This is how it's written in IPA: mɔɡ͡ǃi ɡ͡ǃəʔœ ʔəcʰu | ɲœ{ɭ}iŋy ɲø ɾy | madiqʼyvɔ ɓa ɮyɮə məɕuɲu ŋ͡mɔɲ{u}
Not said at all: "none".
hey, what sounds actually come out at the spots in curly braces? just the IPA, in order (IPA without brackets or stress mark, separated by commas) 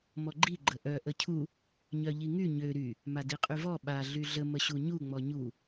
ʎ, u